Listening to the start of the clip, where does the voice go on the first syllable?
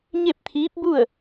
falling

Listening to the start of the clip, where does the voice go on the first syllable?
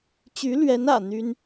rising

